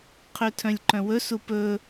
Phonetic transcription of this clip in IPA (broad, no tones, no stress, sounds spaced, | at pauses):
qʰ ø tʰ œ̃ lʲ ǃ œ̃ w ɵ s u p ɵ